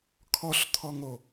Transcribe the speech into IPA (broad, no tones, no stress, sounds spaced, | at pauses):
kʰ ɔ ɬ t̪ʰ ɔ ŋ o